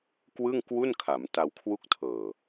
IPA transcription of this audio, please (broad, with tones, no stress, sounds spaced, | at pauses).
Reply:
k w ɯ˥˩ ŋ k w u˥˩ n kʰ a˩˦ m t a˧ w kʰ w u˦˥ k̚ tʰ ɤː˨˩